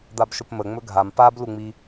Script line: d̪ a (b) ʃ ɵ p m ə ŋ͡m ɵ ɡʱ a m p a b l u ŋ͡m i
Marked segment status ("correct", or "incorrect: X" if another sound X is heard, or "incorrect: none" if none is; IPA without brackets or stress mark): correct